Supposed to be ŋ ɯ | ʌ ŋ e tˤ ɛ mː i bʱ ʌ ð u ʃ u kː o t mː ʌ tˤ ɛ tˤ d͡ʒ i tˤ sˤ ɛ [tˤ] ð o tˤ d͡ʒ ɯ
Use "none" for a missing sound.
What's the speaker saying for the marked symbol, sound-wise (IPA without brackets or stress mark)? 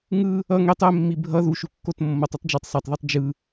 tˤ